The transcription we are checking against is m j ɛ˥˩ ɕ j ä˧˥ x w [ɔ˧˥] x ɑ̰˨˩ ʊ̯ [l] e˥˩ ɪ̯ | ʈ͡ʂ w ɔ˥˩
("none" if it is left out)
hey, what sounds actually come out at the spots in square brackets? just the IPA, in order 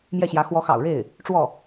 ɔ˧˥, ɻ

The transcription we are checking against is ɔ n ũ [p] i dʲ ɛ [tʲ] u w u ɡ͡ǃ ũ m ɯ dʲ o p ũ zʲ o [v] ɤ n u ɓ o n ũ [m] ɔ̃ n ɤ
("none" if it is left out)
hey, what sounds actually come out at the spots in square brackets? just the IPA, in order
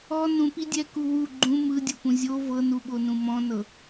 p, k, v, m

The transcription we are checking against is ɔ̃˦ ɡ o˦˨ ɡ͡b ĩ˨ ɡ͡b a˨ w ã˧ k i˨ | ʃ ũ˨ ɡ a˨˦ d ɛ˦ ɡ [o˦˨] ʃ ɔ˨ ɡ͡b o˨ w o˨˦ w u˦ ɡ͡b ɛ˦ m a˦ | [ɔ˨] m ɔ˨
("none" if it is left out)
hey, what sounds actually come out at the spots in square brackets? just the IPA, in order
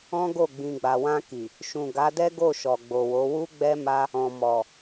o˦˨, ɔ̃˨

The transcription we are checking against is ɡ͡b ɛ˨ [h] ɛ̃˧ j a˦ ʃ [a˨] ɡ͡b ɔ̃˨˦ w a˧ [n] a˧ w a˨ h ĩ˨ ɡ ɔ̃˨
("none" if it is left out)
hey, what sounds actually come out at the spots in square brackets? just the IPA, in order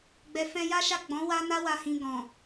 f, a˦˨, n

